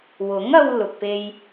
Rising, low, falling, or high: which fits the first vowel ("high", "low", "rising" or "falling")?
rising